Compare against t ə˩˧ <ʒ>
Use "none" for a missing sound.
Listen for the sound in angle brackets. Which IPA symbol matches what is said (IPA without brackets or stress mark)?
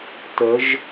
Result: ʒ